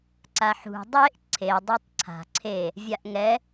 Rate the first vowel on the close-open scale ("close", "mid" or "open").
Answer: open